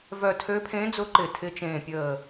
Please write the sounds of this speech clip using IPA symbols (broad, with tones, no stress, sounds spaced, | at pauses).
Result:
v œ˧˩ tʰ ø˧˥ pʰ ẽ˧˥ d͡z ʊ˧˥ ǃ ɪ˧˩ tʰ ɪ˧˥ t͡ʃ ẽː˧˩ pʲ əː˧˩